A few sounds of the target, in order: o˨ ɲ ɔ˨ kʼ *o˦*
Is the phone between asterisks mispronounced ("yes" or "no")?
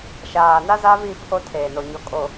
yes